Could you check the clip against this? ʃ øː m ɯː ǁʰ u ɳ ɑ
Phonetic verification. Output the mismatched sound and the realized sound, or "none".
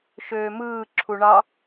none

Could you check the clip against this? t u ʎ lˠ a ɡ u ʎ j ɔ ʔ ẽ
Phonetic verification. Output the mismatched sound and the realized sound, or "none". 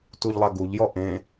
none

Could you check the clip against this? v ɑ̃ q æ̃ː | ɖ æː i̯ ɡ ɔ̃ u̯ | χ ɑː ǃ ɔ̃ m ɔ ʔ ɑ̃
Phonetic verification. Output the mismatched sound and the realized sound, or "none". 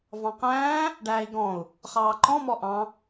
none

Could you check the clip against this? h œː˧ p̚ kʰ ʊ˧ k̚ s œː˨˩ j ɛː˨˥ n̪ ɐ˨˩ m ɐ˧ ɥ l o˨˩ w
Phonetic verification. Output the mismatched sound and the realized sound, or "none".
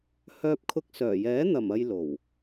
ɥ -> j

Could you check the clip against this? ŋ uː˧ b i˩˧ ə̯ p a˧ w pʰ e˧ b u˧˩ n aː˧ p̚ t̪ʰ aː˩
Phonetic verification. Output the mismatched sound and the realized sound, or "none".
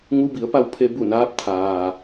uː˧ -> u˧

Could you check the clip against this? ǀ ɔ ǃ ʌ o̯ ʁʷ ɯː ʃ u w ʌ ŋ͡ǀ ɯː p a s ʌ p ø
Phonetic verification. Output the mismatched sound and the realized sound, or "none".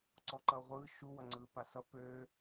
none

